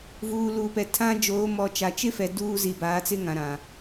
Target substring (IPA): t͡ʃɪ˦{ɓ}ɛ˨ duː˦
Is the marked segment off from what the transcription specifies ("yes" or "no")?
yes